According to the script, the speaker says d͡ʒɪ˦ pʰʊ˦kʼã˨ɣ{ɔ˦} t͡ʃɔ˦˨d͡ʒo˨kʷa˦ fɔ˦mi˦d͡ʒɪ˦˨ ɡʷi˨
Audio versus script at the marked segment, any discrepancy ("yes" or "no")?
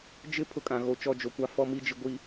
yes